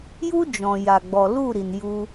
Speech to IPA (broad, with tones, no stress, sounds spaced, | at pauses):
j u˦ d͡ʒ ɔ̃˨ j a˨ ɡ͡b ɔ˨ l u˦˨ ɾ i˨ n j u˧